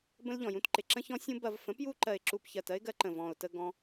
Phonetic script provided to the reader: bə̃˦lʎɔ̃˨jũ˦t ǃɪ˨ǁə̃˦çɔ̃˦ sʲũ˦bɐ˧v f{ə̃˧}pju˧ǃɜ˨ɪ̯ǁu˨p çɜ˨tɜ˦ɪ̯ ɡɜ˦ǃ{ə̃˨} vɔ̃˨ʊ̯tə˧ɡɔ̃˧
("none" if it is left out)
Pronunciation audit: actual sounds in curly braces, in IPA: ə̃˨˦, ə̃˨

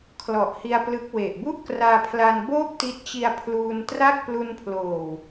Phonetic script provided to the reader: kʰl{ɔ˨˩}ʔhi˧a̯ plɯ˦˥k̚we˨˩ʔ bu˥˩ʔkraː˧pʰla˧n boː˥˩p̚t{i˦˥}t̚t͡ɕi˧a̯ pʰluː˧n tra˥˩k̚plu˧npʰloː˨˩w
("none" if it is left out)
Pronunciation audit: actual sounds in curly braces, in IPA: ɔ˨˩, i˦˥

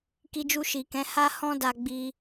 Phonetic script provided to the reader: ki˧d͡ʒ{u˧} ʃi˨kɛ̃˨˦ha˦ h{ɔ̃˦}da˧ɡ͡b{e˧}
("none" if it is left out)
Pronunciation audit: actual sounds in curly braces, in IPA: u˧, ɔ̃˦, i˧

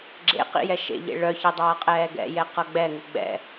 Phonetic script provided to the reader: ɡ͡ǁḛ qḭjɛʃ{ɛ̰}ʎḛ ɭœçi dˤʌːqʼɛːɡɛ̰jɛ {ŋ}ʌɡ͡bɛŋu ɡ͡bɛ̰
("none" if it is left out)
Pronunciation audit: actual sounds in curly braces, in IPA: ḛ, q

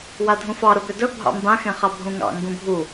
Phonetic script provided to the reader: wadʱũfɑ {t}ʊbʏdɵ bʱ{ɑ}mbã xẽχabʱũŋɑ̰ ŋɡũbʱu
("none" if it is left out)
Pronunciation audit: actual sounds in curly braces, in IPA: ɾ, ɑ̰

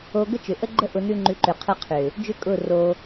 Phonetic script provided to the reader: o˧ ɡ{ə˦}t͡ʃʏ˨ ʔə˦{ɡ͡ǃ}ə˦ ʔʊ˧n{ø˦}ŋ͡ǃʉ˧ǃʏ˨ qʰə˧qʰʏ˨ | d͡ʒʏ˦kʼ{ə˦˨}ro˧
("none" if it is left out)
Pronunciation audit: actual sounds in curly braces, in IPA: ə˦, ɡ͡ǃ, ʉ˦, ʊ˦˨

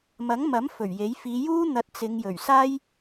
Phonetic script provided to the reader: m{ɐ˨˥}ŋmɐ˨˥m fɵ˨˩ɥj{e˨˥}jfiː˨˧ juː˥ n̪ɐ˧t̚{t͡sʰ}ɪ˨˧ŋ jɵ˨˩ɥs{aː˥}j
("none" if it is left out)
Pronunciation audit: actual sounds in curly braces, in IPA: ɐ˨˥, e˨˥, t͡s, aː˥

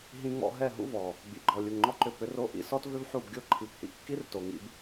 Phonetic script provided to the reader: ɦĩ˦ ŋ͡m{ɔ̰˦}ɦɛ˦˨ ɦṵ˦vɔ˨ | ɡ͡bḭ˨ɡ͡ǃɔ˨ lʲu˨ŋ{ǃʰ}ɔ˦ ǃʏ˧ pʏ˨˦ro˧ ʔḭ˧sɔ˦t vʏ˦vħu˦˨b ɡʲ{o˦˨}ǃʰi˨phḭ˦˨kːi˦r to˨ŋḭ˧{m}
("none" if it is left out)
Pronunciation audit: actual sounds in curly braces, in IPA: ɔ̰˧, ŋ͡ǃ, o˦˨, b

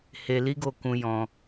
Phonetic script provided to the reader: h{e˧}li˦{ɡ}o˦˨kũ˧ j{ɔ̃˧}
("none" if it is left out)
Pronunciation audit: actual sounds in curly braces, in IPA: e˧, ɡ, ɔ̃˦

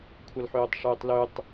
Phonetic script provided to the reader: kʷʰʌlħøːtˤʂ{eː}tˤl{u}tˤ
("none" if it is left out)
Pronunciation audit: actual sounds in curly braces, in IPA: øː, ø

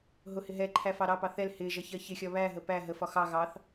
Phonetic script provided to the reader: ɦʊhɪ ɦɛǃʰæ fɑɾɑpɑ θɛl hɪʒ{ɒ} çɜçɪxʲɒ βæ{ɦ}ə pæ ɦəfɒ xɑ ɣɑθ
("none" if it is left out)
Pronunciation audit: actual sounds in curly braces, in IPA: ʌ, ɦ

